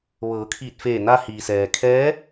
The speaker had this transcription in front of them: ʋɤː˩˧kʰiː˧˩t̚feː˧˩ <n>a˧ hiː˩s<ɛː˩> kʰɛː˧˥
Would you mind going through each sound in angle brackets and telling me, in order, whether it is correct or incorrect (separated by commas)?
correct, correct